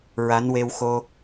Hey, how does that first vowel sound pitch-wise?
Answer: rising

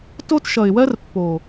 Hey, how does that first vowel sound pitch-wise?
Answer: high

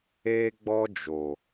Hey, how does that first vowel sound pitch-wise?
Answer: high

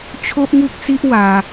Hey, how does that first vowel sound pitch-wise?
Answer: high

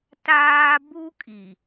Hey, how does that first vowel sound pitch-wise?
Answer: high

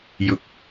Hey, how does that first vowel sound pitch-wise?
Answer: rising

